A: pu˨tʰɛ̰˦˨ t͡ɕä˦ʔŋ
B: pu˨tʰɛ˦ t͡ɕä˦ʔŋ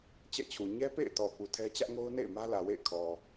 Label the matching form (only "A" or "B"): B